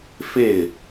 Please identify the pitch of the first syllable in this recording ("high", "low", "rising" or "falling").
falling